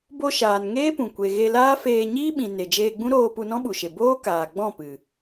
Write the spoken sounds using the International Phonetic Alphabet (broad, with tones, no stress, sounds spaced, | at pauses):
b o˧ ʃ aː˨ n ŋ eː˦ p ũ˨ kʷ e˨ ɣ e˧ l aː˦ f eː˧ ɲ iː˦ ɓ ĩ˨ n e˨ d͡ʒ eː˧ ɡ͡b ũ˦ ɾ oː˧ p u˧ n ɔ̃˦ ɓ u˨ ʃ e˨ b oː˦ k aː˨ ɡ͡b ɔ̃˦˨ p ɨ˨